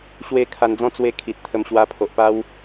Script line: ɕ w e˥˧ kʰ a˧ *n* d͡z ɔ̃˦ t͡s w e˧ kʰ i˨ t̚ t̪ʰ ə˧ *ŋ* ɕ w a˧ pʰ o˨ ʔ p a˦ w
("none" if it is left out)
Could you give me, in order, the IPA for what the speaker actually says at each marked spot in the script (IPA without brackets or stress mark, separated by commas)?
n, m